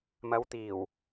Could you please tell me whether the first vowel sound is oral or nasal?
oral